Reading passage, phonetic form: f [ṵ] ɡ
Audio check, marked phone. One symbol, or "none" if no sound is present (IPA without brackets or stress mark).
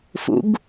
ṵ